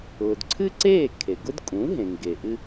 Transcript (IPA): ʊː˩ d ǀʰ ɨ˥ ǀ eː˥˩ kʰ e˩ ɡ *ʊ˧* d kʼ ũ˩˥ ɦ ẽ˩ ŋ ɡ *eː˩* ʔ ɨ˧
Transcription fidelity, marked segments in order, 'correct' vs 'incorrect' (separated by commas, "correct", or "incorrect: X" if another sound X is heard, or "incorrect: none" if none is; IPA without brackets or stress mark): incorrect: ʊ˥, incorrect: e˩